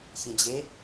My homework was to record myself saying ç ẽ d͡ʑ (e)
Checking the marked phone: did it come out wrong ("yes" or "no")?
no